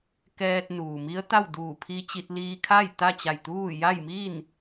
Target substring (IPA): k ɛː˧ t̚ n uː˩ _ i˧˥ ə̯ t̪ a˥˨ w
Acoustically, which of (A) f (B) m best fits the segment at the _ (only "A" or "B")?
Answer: B